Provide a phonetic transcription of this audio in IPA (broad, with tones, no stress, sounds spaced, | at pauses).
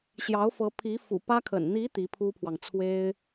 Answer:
ɕ j ɑ˧˥ ʊ̯ f ɤ˧˥ pʰ i˧˥ f ṵ˨˩ p ä˥ kʰ ə̰˨˩ n n̪ i˧˥ t̪ i˧˥ pʰ u˥ pʰ w ɑ˨ ŋ t͡sʰ w e˥ ɪ̯